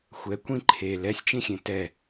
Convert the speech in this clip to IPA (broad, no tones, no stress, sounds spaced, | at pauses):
xʷ ɛ kʷ ĩ ǃʰ e l ɛ sʲ t͡ʃ ĩ xʲ ẽ t ɛ